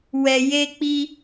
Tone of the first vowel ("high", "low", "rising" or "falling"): low